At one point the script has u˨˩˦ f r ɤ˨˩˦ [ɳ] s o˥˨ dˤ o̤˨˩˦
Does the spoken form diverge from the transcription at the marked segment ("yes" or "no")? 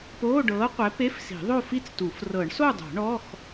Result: no